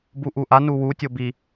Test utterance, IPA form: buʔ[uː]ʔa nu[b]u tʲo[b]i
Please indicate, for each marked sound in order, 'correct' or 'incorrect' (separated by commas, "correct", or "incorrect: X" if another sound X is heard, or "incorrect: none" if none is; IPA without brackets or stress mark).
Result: incorrect: u, incorrect: w, correct